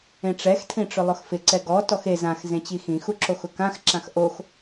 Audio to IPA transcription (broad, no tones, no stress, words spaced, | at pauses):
ẽʈ͡ʂɛxtʰĩʈ͡ʂʊ lˠʊxfɪ ǀɛɡɔ tɔxe zãx zẽt͡ɕixĩxu ǁoxʊkãx ǁãxʔox